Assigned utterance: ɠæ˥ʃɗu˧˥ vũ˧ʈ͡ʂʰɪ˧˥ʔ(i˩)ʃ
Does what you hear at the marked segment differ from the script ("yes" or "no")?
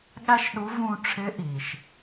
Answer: no